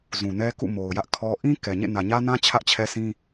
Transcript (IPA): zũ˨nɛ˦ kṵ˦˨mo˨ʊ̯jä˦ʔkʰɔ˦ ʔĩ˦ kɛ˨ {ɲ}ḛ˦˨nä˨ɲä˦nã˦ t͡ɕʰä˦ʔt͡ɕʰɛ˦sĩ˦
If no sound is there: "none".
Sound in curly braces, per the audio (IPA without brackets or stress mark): ɲ